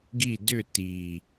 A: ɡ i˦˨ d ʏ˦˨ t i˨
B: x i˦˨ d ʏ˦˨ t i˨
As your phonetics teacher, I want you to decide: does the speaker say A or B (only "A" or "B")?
A